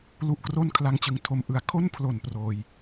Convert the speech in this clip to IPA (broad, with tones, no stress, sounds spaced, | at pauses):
l u˦˥ ʔ k r o˥˩ n kʰ l a˦˥ ŋ t͡ɕ ɯ˩˦ ŋ tʰ o˧ m ʔ ɯ˧ a̯ kʰ o˥˩ n pʰ l o˨˩ n p r oː˧ j